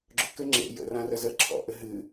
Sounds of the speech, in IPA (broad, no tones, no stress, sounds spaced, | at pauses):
ɡ͡ǁ ʊ k ɘ ŋ͡ǁ ḛ j ə̰ r ã r ə z ə ǁʰ ɔ̰ ʔ ɘ ɦ ɨ